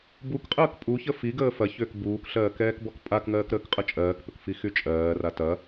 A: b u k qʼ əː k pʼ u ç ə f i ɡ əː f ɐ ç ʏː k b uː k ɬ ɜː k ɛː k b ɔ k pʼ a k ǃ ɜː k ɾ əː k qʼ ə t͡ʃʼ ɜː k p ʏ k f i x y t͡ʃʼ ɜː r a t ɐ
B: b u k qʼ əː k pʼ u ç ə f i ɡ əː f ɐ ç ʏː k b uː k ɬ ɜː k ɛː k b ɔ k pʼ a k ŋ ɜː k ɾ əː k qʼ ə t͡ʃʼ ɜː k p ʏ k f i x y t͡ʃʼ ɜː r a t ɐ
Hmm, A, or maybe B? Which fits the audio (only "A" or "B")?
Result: B